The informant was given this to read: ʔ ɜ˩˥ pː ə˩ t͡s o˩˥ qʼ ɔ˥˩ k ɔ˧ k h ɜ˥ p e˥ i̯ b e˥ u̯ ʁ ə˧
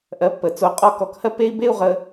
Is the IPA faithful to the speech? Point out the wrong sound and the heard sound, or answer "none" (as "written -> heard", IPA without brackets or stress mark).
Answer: none